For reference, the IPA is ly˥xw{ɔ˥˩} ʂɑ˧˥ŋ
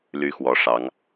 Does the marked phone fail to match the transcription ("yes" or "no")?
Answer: yes